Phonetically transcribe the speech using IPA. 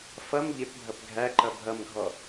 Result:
f ʌ m ʎ ɪ p bʱ ʌ p ɡʱ æ ǃ ʌ bʱ ʌ m ɡʱ ɔ

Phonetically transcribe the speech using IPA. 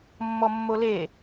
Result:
mː ɔ mː o l e

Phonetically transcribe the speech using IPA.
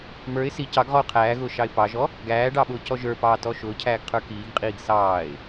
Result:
m ə˞ ɪ̯ s i c ɑ ɡ ʁ ɔ ʊ̯ qʰ æː ɣ ʊː ʃ ɑ ɪ̯ p ɑ ʒ ɔ | ɡ æː ɖ ɑ ɓ ʊː c ɔ ʒ ə˞ p ɑː t ɔ ʃ ʊː cʰ æː ɡ qʰ ə˞ k iː ɡ qʼ iː ɡ s ɑː ɪ̯

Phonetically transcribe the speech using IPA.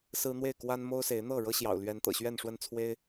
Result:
s ɹ̩˦ n̪ w e˥˨ ɪ̯ k w a˦ n m o˦ ʊ̯ s e˨˦ ɪ̯ n̪ ɤ˥˨ ɻ ɤ˦ ɕ j ɑ̰˨˩ ʊ̯ l ɥ ɛ˨˦ n t̪ ɤ̰˨˩ ɕ ɥ ɛ˥˨ n ʂ w ə˥˨ n t͡sʰ w e˦ ɪ̯

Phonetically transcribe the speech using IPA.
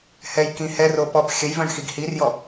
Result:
h ɛ j k ĩ h ɛ r o p ɔ p xʲ ə j v œ̃ ɳ x i ɡ h i r j ɔ

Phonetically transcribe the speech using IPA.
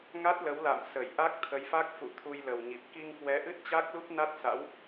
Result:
ŋ a˦˥ t̚ l ə˨˦ w l a̰ː˧˨ m s ə˧˩ j ʔ a˦˥ k̚ t̪ʰ ə˨˦ j f a˦˥ k̚ f ṵ˧˨ t̪ʰ u˧ j l ə˨˩ w ɲ i˨˩ p̚ k i˧ ŋ k w ɛ˨˦ ʔ ɨ˦˥ t̚ t͡ɕ a˦˥ k̚ l u˦˥ p̚ n a˦˥ t̚ s a̰˧˥ w

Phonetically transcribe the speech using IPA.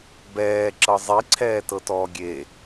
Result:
b ɛː ǁ ɤ zˤ i ǀʰ ɛː t ɤ t ɔː ɡʲ e

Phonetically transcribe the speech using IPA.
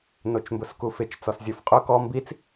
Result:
n o t͡ʃ m b ʊ s k u f ɪ t͡ʃ t͡s ɔ s zʲ o f qʼ ʊ k ɔ m b i t͡s

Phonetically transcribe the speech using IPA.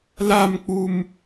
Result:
l a m k͡p u m

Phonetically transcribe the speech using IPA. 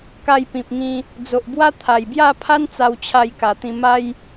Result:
k a˧ j p ĩ˨ p̚ ŋ ĩ˧ | d͡z o˨ ʔ b w a˦ t̪ʰ a˨˩ j b j a˥˧ pʰ a˦ n t͡s a˧ w t͡ɕʰ a˧ j k a˨˩ t̪ ĩ˧ m a˦ j

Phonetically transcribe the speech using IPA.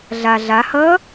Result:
ɮ a ɮ a h ʌ

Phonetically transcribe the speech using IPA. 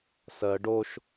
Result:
s ɜ ɖ o ʃ

